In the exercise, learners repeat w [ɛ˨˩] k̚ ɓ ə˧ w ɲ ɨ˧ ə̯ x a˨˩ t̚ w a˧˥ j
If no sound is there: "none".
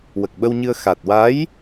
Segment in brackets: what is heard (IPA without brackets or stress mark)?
ə˨˩